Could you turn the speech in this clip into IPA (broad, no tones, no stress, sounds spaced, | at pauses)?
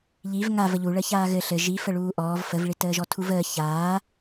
ʎ i v ŋ a v ə ʎ u ɭ əː ç aː ɣ ɘ ɬ ɘ ʒ i f ə ɭ uː ʔ ɔː v f ə v ɭ i t əː ʒ ɔ tʰ u v əː ç aː